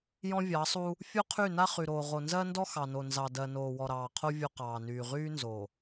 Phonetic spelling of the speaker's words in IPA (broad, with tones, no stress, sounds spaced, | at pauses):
j ɔ̃˦ vʲ ɑ˨˦ sˤ u˦ | fʲ o˦ qʰ y˦˨ n a˦ χ y˨ ɾ oː˨ ʁ o˨ n z ɜ˦ n d ɔ˦ x ɑ˨ n o˨ n z ɑ˨ d ɜ˨ n oː˨ w ɔ˨ ɾ ɑː˨ qʰ o˦ vʲ o˦ q ɑː˨ n yː˨ ʁ yː˦ n z o˨